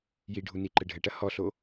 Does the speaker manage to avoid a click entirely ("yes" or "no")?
no